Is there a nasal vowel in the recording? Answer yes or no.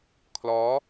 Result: no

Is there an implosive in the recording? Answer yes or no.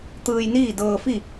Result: no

